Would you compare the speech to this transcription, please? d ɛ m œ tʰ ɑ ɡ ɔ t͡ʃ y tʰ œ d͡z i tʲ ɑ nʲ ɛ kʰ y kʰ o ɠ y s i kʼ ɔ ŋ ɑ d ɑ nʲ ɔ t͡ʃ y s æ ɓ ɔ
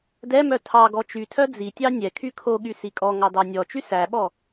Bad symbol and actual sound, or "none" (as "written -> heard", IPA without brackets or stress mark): none